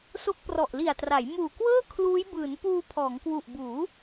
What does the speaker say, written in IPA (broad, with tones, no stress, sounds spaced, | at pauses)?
s o˦˥ k̚ p r ɔ˨˩ ʔ l i˨˩ a̯ t r a˩˦ j m uː˨˩ k w ɤː˥˩ kʰ l uː˦˥ j b ɯː˩˦ n p uː˧ pʰ ɔː˩˦ ŋ k w u˨˩ ʔ b uː˩˦